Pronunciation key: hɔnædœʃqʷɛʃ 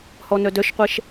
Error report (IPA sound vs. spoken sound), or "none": æ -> œ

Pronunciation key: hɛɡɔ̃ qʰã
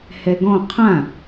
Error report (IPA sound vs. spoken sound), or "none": none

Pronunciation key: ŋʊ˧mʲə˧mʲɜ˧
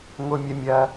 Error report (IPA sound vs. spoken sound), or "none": none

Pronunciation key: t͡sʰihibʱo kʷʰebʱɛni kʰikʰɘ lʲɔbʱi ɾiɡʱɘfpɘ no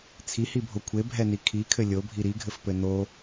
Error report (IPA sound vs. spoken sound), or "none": ɔ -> o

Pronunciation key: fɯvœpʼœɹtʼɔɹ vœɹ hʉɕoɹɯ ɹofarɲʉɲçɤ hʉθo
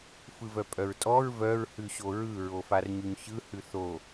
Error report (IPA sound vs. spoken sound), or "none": ɤ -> ɯ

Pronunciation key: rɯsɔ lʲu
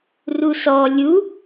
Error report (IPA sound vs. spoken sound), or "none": ɯ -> u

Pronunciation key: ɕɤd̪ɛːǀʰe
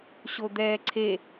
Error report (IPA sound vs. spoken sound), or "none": ɤ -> o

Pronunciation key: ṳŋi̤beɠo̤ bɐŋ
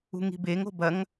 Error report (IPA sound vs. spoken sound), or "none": ɠ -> ŋ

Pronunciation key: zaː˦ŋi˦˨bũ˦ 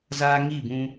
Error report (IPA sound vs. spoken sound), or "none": none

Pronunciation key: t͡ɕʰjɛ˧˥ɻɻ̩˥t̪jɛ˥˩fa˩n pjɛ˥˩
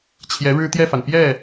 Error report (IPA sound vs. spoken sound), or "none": none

